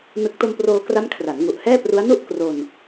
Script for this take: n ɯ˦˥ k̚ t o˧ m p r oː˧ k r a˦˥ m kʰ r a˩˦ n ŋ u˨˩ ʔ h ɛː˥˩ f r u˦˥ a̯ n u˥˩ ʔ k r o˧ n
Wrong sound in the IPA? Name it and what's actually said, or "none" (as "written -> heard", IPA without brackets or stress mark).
f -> p